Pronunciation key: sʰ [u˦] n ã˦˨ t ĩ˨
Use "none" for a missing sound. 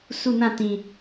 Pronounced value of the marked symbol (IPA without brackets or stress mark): u˦˨